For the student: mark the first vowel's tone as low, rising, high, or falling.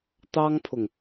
high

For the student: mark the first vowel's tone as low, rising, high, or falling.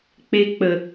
high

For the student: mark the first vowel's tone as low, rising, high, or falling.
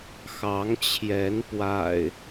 rising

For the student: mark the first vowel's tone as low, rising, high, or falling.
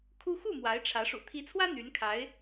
high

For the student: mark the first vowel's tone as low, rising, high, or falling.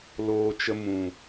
low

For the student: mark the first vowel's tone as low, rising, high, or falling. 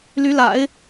rising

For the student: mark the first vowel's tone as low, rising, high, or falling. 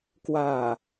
low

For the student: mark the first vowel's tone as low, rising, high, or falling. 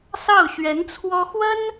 falling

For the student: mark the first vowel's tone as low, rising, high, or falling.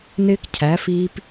high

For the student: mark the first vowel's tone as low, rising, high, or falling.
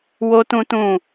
high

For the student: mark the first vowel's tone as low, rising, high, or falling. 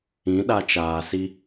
rising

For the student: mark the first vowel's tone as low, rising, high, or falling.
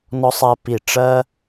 high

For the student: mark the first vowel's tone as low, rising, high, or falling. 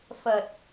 low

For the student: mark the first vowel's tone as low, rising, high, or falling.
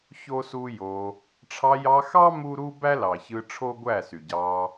high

